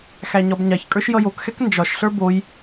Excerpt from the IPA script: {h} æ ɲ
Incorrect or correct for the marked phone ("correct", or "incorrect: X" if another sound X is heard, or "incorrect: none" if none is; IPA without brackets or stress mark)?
incorrect: x